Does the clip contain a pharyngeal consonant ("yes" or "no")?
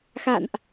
no